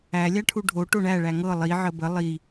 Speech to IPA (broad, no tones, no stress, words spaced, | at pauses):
æ lʲaʈʰuɖʱo ʈoɳæ ɭæŋɤ lˠi ʕəbə lˠi